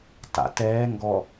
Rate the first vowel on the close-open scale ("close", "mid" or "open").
open